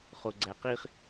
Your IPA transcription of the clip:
χoɡ͡ǀæqiχ

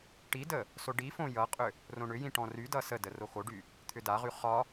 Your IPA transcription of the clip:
ʈidə | soɖifõ jʌqʼʏ | rõɳʏjĩ ʈɔ̃rydʌ sədə roxoɖy | t̪ʰʏdaʁy χɒ

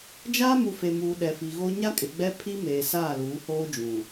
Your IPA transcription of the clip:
d͡ʒaː˦mu˨fe˨muː˨ ɗɛ˨fi˨ɣo˦ ɲa˦kʼɪ˨ɡ͡bɛ˦ pʰi˦ meː˨saː˦˨luː˨˦hoː˦ d͡ʒũ˨

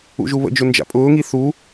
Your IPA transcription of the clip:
ṵʒuβə̰d͡ʒʊ nd͡ʒa̰pʼʊːŋi θu

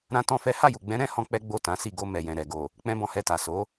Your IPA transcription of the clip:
ɾã˦tɔ̃˦fɛ˦ ha˦˨ju˨ɡ͡bɛ̃˨˦ ɾɛ̃˦ hɔ̃˦k͡pɛ˦ ɡ͡bo˦˨ tã˨˦si˦˨ ɡo˧ mɛ˨jɛ̃˨ɾɛ˨ ɡo˨ | k͡pɛ̃˦bɔ̃˧hɛ˧ta˨ so˨˦

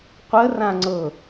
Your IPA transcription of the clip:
qʷərã ŋ͡ǀɤ

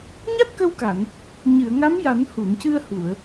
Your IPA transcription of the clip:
ɲa˦˥t̚kə˧wka˨˩˨n | ɲɨ˨˩˨ə̯ ŋa˧˥mja˨˩˦nhu˨˩˨ncɨ˧ə̯ hu˨˩˨ə̯

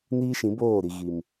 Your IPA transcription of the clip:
niː˦ʃĩ˨˦ boː˦˨ɾi˨ ɣi˨m

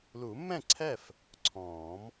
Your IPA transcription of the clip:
lu˨˩˦mːɛ̃˥˩ǀʰɛ˥˩f | ǀʰɔ̃ː˨˩˦m

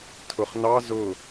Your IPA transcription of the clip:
tʰʊχnɑ zʊ

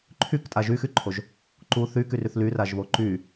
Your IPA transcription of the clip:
ǃʰyktʼa ʒyxyǃʰoʒ | ǃu θykyryθ lyraʒβo ǃy

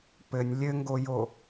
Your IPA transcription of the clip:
pɘnʲ lʲɘŋɡojo

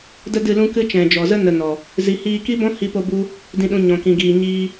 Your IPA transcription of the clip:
də˦dɨ˦˨lũ˦ kɨ˦ t͡ʃɛ̃˨d͡ʒɔ˨zə˦ nə˧nɔ˨ | zi˧hiː˦ ki˦bɔ̃˦ hi˦po˦ bu˦ | dĩ˧ɗũ˧ ɲɔ̃˧kĩ˧ɡiː˧ ɲiː˦

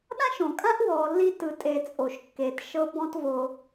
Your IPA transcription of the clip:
ɗã˥ʃõ˩kʼã˥ʔ wɔː˨lːi˦tɯ˨ tʼe˨ t͡sʼo˩ʃ kːeː˩tʃɤ˦bɔ̃˦tvo˨

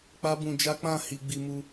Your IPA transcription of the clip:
k͡pa˦bũ˧d͡ʒa˦ k͡pã˦˨ hi˧ ɡ͡bi˧mu˧

